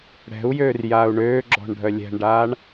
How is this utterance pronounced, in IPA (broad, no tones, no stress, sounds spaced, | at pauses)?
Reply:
ɽ ɛ̤ u̯ j øː r j aː u̯ ɳ øː ɡ͡ǁ ɔ̤ ɳ ɖʱ œ lʲ ɛ̤ ɳ ɖ aː ɳ